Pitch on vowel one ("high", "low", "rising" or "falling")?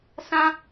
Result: high